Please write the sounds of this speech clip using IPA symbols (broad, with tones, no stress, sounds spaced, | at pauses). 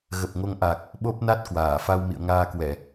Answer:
ɣ ə˨˩ p̚ ŋ o˨˦ ŋ ʔ a˨˩ k̚ | ɓ o˦˥ p̚ n a˦˥ t̚ k w aː˧˩ f a˧ w m ḭ˧˨ ə̯ ŋ aː˧ k w ɛ˧˩˨